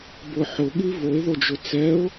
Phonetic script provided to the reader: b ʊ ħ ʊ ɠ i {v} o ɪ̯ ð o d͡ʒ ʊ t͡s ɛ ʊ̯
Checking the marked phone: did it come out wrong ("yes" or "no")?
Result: no